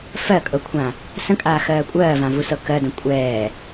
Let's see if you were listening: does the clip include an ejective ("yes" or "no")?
yes